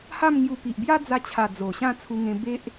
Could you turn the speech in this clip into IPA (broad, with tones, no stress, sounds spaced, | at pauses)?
h a˥˧ m ŋ j u˧ p i˨ ʔ b j a˦ d͡z a˧ t͡ɕʰ a˨˩ d͡z o˨˩ ɕ ã˥˧ t͡sʰ u˧ ŋ ẽ˧ b e˦ ʔ